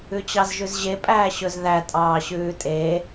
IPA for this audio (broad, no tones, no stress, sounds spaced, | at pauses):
ʉ t͡ɕ ɑ z ʒ ʉ z ʑ e pʼ æː ɕ ɵ z ð æ tʼ ɑː ɕ ʉː tʼ e